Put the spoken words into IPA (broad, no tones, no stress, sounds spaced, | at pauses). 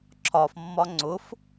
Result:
ǁʰ ɒ f mː ɒ ŋ͡ǀ ʊ f